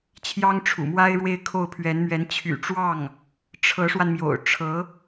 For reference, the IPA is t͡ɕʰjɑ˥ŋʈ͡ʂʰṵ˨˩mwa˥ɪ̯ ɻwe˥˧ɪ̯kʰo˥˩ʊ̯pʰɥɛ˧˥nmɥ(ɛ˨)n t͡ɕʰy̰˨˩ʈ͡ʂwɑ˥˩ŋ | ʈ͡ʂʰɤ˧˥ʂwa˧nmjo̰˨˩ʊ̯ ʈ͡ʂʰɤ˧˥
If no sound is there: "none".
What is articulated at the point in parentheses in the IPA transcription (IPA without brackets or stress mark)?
ɛ˧˥